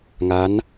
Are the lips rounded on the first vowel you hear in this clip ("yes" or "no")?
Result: no